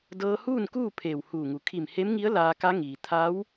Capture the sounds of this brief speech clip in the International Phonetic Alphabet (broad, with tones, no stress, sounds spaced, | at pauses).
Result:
d ɤː˧ h uː˥˨ n k uː˥˨ pʰ eː˧˩ w h uː˧˩ ŋ u˩˧ kʰ i˧˩ m h e˧˥ m ŋ i˧˥ ə̯ l aː˧ k a˧˥ ŋ iː˩ t̪ʰ a˧˥ w